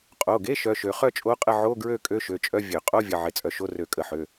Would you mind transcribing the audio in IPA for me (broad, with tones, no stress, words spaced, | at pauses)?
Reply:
qʼo˩˧˩ɡe˧˥˧ ʃœ˧˥˧ʃø˧ χœ˥˨t͡ʃʼo˧˥˧qʼə˥˨ ʕo˧˥˧ ɡɹø˥˨ kʼø˧˥˧ʃø˩˧˩t͡ʃʼœ˧˥˧ vʲø˧˩˧ qʼo˧˥˧vʲə˩˧˩ ʕɪ˧˥˧t͡sʼœ˧ ʃo˧˥˧rø˧˩˧kʼə˧˩˧ħø˩˧˩